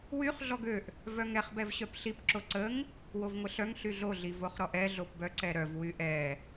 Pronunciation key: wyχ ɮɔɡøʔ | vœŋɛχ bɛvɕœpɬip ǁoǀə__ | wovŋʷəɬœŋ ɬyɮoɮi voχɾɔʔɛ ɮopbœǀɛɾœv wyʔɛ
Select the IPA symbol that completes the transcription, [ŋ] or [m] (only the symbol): ŋ